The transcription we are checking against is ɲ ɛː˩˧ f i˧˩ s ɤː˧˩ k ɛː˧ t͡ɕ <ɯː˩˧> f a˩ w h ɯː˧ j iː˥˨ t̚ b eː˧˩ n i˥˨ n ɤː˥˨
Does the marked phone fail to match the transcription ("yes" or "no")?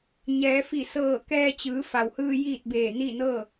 no